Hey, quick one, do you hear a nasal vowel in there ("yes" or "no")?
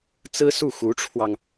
no